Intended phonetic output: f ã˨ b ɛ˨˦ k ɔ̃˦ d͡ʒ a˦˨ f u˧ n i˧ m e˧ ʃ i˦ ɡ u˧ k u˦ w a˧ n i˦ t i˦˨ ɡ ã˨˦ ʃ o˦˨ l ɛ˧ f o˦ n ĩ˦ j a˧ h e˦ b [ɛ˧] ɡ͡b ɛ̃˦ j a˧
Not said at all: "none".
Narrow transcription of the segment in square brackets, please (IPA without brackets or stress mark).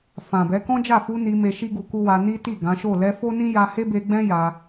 e˧